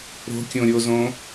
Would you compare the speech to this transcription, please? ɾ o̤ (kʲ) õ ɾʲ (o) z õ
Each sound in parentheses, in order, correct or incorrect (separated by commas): correct, correct